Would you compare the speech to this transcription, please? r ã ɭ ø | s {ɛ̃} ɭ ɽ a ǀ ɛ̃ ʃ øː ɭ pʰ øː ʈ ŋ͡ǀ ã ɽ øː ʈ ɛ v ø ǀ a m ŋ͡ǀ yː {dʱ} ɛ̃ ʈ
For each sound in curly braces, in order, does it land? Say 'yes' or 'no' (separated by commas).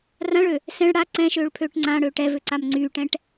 yes, no